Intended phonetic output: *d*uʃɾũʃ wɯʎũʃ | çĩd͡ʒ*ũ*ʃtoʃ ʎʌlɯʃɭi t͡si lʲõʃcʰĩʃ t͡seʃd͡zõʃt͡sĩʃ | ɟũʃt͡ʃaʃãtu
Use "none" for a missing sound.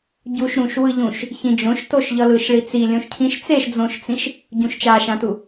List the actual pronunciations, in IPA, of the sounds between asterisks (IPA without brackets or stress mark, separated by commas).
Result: ɟ, õ